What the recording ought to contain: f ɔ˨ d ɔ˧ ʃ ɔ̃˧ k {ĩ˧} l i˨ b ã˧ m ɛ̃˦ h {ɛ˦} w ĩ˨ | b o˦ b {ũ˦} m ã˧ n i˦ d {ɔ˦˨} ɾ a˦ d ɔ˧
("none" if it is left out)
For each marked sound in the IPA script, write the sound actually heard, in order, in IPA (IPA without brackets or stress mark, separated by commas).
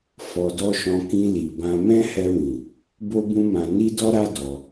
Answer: ĩ˧, ɛ˧, ũ˦, ɔ˦